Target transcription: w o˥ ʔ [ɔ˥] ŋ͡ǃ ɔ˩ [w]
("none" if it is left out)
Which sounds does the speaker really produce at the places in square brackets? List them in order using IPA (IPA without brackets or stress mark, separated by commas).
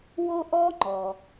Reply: ɔ˥, none